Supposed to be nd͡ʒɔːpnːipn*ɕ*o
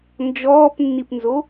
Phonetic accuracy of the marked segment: incorrect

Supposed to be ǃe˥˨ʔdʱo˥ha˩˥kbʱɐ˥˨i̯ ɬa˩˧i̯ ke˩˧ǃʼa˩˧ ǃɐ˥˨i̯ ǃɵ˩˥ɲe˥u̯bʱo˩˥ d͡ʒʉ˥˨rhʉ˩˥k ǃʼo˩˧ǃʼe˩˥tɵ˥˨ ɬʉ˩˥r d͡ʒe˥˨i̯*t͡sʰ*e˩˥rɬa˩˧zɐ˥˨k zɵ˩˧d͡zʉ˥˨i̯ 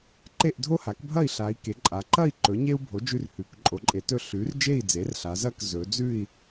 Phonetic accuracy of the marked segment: incorrect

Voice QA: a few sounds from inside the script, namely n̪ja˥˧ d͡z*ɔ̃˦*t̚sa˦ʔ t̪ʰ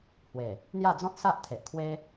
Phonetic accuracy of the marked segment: correct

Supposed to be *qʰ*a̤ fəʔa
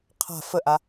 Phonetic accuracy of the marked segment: correct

